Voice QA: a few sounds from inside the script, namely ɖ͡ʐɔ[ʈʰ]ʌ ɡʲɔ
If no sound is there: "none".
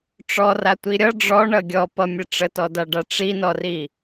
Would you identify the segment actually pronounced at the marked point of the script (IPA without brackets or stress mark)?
ɳ